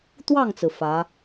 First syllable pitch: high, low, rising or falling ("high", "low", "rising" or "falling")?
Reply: falling